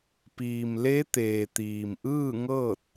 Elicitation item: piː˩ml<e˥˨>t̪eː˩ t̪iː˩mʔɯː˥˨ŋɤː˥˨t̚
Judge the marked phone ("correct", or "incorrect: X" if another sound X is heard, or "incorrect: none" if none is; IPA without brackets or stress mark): incorrect: e˧˥